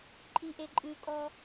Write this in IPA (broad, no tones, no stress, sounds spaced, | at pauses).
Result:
ǃʼ i ʔ e ǃʼ ɨ kʼ ɔ